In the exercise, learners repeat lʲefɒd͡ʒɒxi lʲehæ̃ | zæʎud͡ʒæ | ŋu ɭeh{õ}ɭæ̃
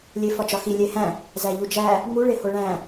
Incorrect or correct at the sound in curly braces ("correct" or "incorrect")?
incorrect